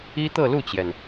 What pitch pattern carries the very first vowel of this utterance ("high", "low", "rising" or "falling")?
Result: high